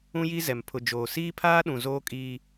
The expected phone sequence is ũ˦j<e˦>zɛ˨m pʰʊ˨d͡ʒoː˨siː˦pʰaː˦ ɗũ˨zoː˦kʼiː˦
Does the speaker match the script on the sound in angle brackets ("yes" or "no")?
no